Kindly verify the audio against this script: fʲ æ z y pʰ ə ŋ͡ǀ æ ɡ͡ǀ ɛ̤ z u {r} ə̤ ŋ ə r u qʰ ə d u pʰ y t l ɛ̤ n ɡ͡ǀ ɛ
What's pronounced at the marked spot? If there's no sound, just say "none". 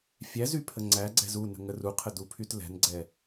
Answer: n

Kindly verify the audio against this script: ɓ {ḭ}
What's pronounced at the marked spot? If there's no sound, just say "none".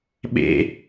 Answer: ḛ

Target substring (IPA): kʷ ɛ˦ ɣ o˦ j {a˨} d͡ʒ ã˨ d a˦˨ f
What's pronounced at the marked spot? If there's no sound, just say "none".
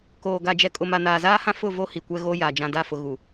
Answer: a˨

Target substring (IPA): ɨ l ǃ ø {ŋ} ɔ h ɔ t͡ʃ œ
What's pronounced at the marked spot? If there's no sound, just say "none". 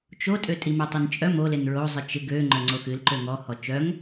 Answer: ŋ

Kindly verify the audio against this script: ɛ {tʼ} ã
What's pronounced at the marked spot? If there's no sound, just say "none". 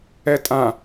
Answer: tʼ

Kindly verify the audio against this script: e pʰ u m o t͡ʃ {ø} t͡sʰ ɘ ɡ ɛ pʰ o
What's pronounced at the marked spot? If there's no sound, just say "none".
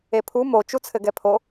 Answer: u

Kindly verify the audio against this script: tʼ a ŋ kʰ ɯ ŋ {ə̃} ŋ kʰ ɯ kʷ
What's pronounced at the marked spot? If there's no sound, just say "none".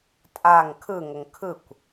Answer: ə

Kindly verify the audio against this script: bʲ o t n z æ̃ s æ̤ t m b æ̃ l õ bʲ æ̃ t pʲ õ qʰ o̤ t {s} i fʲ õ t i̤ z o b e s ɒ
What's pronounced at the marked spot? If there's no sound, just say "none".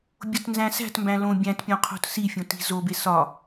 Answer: s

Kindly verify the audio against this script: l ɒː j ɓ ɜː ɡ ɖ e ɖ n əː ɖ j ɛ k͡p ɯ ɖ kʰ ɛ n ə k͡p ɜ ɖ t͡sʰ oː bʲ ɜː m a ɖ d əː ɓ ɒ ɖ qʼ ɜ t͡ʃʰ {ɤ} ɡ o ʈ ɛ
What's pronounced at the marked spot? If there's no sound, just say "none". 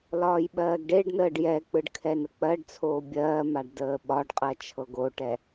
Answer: ɤ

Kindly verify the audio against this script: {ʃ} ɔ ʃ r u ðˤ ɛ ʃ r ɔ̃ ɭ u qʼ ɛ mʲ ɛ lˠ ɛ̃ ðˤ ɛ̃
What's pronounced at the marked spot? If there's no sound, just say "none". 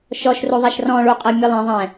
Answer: ʃ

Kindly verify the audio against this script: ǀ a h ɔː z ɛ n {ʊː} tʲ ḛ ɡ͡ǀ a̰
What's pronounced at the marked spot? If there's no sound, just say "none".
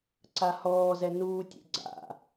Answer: uː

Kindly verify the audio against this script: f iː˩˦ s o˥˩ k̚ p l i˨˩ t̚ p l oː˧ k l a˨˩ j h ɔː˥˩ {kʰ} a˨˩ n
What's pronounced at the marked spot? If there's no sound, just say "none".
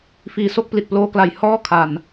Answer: kʰ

